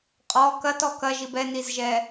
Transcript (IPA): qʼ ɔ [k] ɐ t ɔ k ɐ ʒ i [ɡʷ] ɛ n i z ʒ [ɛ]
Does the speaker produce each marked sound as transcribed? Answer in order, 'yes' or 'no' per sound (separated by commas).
yes, no, yes